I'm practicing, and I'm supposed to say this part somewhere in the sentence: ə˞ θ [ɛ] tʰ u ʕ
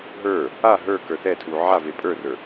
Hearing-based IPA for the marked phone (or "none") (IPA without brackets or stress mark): ɛ